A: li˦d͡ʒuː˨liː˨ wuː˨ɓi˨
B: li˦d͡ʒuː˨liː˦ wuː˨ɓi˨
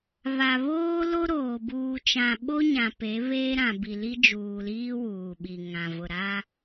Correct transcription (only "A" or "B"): B